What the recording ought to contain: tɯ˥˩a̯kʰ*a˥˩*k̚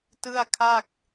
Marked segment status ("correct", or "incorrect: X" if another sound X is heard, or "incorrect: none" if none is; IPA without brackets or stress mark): correct